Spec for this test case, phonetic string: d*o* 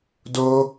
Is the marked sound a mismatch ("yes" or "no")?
no